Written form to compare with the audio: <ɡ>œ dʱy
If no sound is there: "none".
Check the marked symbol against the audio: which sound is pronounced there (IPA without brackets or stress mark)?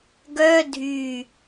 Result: ɡ